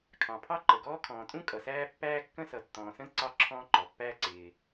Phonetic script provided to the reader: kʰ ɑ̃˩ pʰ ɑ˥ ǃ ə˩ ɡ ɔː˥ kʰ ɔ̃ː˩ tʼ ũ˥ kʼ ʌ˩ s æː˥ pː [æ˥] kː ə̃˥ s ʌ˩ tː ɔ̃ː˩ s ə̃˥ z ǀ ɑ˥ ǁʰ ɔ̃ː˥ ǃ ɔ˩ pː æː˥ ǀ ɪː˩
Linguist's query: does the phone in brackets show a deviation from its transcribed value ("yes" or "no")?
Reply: yes